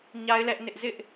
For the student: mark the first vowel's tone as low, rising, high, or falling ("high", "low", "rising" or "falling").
high